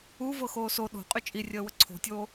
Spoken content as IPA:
u v ɤ x oː s o ɗ o̤ qʼ y t͡ʃʼ i rʲ əː w ə ǀʰ o̤ tʲ oː

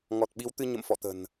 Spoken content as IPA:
ŋ ɔ˨˩ t̚ ɓ i˨˦ w t̪ ɨ˧ ɲ ə̰˧˨ m f ɔ̰˧˨ t̪ ə̤˨˩ n

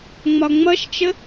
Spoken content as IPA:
ŋ͡m ɒ ŋ͡m ʌ ʃ t͡ʃ ə

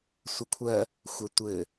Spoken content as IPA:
sʷ ɛ kʷʰ ɜ | xʷ ɜ tʷ ɘ

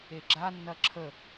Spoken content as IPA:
e ɡ͡ǁ a nː ɐ ǁʰ ə

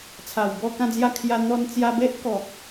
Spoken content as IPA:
t͡sʰ a˨˩ w b ɔ˥˧ k ã˥˧ d͡z j a˥˧ kʰ j a˧ n̪ ɔ˧ n t͡s j a˧ b e˦ ʔ k ɔ˨ k̚

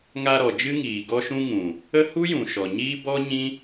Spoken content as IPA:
ŋ a˧ ɾ ɔ˨ d͡ʒ ɨ˦ ŋ iː˨ ɡ ɔ˧ ʃ ũ˧ ŋ ũ˨ | ə˦ h u˦ j ũ˨ ʃ ɔ˨ ɲ iː˦ b ɔ˦ ɲ ĩ˦

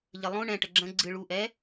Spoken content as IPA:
ʎ ə lˠ õ ɳ ɛ̃ ʈ ə ɡ͡ǁ ə̃ ɡ͡ǀ ɨ ɭ u ʔ ɛ

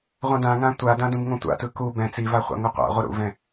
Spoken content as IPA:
ʁʷ ã d ã ŋ ã tʷ a d ã d ũ b ŋ õ tʷ a̰ t ɯ k u b ɛ̃ t͡s i v a χʷ a̰ ŋ u qʷ a̰ ʁʷ ʌ ɾ ṵ v ɛ̃

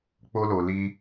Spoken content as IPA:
k͡p o˦ l o˧ l i˦

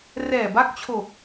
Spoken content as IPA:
r ɛː˨˩ b a˦˥ k̚ t͡ɕʰ o˨˩ k̚

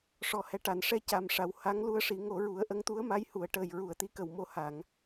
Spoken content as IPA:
ʂ ɔ˨˩ h ɛ˨˩ ʈ a˨˩˨ n ʂ ɛ˧ c a˨˩ m ʂ a˨˩ w h a˧˥ ŋ l u˧ ə̯ ʂ i˨˩˦ ŋ o˨˩˦ ɹ u˨˩˦ ə̯ ʔ ə˧˥ ŋ t̪ u˧˥ ə̯ m a˧˥ j h u˨˩˦ ə̯ ʈ əː˨˩ j ɹ u˨˩˨ ə̯ t̪ i˧˥ k ə˨˩˨ w m o˧ h a˨˩˨ ŋ

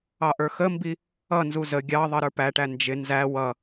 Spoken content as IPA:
ɑ ʔ ə˞ x ə m b i | ʌ n z u z ə ɡʲ ɑ ðˤ ʌ ɾ ə˞ p æ ʈ æ n d͡ʒ ɪ n z æ w ʌ

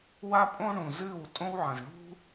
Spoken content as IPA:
w a˦ pʼ õ˦ ɳ ũ˨ z ɨː˦˨ w tʼ õ˦ w ʕ ɐ̃˨ z ɳ ṳ˦

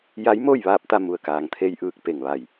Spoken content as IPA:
j a˧˥ j m oː˥˨ j ʋ aː˧ p̚ t̪ a˧ m u˩ ə̯ k aː˩ ŋ t̪ʰ e˧ j ʔ ɯː˧˩ k̚ p e˧˩ ŋ ʋ a˧˩ j

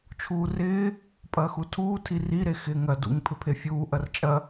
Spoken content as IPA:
t͡ʃʰ uː r ɪː | pʼ ɐː x u tʰ uː tʰ i r i ɾ e x ɪː ŋ ɐ d ṵ ŋ pʰ ʏ pʰ e fʲ uː ʔ ɐ r t͡ʃʼ ɐ

